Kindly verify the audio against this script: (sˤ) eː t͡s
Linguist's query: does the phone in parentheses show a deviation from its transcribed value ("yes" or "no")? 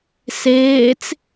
yes